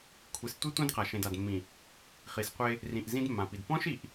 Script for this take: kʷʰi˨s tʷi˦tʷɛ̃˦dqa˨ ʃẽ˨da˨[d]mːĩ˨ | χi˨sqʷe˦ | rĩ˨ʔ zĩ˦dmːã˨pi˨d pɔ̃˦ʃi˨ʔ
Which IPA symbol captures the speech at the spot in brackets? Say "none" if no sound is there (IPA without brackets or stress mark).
d